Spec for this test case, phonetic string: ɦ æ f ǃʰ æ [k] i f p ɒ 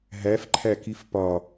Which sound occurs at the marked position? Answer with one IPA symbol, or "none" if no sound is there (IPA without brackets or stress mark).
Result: k